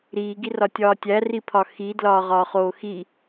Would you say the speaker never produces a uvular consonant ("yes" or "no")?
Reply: no